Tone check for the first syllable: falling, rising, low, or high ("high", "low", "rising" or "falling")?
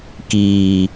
low